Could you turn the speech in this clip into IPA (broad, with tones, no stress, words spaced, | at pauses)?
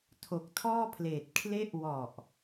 tʰo˨˩k̚tʰɔː˥˩pʰleː˨˩t̚ kʰle˦˥ʔwɔ˨˩ʔ